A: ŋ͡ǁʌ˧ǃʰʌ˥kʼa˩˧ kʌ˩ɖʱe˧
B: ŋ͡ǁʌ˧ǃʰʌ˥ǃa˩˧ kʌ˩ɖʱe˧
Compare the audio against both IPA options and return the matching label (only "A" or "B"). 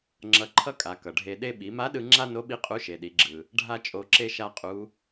A